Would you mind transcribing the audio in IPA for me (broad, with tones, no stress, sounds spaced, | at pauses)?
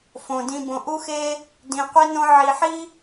f õ˨ d ĩ˧ b õ˨ ʔ u˦ x e˦ | d ĩ˨ qʷ i˦ n õ˦ ʕ i˨ ħ i˦